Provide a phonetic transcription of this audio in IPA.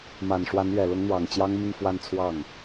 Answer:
ma˨˩nʂwa˧˥n ɥɛ˨˩lʊ˧˥ŋ n̪wɑ˨˩ŋt͡ɕjɑ˥ŋ mi˥˧ŋfwa˥˧nt͡sʰwɑ˥˩ŋ

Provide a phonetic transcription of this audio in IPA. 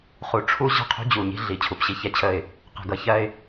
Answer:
χu˨ʈ͡ʂʰu˦ ʑə̤˦˨qʰṳ˦d͡ʑu˨ ɲi̤˦ɮi˨˦ t͡ɕʰu˨pɕi˦çɛ˦t͡ɕʰə˦˨ɪ̯ | qɛ̤˨ɡʌ˨çɜ˦ɪ̯

